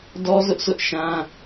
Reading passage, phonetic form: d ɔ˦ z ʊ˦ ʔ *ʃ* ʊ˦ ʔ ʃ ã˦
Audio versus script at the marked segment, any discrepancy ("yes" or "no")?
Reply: yes